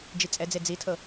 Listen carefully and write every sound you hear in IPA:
d͡ʒ i t͡sʼ ɛ d͡z e d͡z i tʰ ɤ

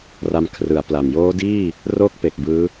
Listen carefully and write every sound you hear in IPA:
r a˧ m kʰ r ɯ˩˦ a̯ p l a˨˩ m j oː˦˥ d iː˥˩ | r oː˥˩ k̚ p e˨˩ k̚ b ɯː˦˥

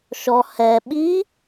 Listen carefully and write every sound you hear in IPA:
ʃ ɔ h ɛ ɓ i

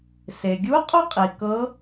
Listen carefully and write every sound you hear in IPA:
s e˩ ɡʲ u˧˥ qʼ u˥ qʼ i˩ k ɤ˧˥

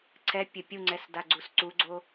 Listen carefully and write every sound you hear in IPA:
ǀʰ ɛ pʲ ɘ pʲ u ŋ͡ǀ ɛ s d a ɡ͡ǀ u s ǀ u ɡ͡ǀ o

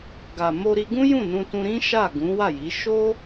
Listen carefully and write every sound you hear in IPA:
ɡ a˨ m o˧ ɾ i˧ ɡ ũ˦ j ũ˦˨ n ũ˧ t ũ˧ ɾ ĩ˦ ʃ a˦˨ ɡ ũ˨˦ w a˦˨ j i˨˦ ʃ o˦

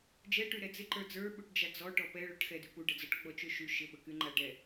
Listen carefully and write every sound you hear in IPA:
d͡ʒ ɛ ʈ y ɾ ɛ d͡z ɪ ǃ ə˞ d͡z ə˞ ɓ u ʈ d͡ʒ a d͡z ɔ ʈ ɔ p ɛ ɭ ə ʈ x ɛ d y p u ɖ ə d͡z ɔ ʈ ɡ͡b ɔ t͡ʃ ø ʃ y ʃ ɪ ɓ ə k y ŋ͡ǃ a ɖ ɛ

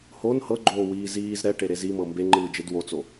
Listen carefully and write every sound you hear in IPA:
h o n h ɤ ɡ͡ǃ oː w iː z iː z ɾ ɛ ʈ e ɾ e z i m ɤ m b e ŋ͡ǃ ɯː d͡ʒ e d w o t͡s o

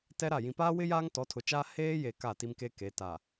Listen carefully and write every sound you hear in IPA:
t ɛ˦ ɾ a˦˨ j ĩ˨ p aː˦ w ɪ˦ j aː˦ ŋ t ɔ˨˦ tʰ ʊ˨ t͡ʃ aː˦ h eː˦ j e˨ k a˦˨ t i˦ m k e˦ k e˨˦ t a˨

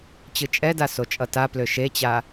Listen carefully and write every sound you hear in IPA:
t͡ɕ ɯ t͡ʃʼ ɛ d a s o t͡ʃʼ ʌ t a p l ø ʃ e t͡ɕ a

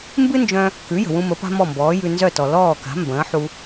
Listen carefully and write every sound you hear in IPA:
m b ɨ˥ n d͡ʒ œ̃˧ | k ʉ˩˥ j ə̤˩ w ũ˧ m ə˩˥ p a̤˥ m ɔ˥˩ m b ɔː˩˥ j ʉ˧ n z œ˥˩ t ɔ˩ l ɔː˥˩ k a̤˩˥ m b ə̃ː˩˥ ħ u˧

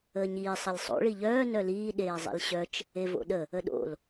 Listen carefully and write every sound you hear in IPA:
əː ɲ iː sˤ ə lʲ sˤ o̰ ɭ i ʎ œː n œ l iː ɗ eː zˤ ḭ l ɕ œ t͡ʃ | e v o̰ ɗ ə | ə ɗ o̰ l

